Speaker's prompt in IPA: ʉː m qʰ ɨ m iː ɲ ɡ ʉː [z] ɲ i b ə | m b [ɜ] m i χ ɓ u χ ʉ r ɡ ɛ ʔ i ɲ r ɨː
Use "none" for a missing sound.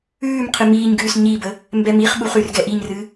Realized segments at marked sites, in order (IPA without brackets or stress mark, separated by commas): s, ɛ